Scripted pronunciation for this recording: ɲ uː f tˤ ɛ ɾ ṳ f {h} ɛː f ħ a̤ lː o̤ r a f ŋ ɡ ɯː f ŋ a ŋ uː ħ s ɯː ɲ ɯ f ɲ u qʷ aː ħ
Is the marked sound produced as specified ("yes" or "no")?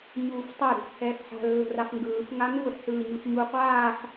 yes